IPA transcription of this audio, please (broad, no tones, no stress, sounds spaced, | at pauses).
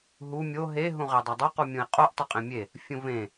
ɦ u mʲ o ɦ e ɦ ũ ʁ e dˤ ʌ dˤ o q u mʲ ũ i̯ qʼ o ʔ tˤ ʌ qʼ ẽ mʲ e | fʲ ũ v ẽ